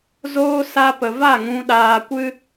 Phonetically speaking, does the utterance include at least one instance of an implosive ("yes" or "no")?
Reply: yes